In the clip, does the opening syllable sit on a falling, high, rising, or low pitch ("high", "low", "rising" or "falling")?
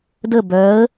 falling